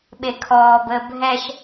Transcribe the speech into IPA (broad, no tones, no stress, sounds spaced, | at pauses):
ɓ e kʰ ɔː b əː bʱ ɛ ʃ